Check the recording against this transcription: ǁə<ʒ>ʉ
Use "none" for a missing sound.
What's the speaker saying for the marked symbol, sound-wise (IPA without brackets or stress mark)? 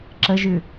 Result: ʒ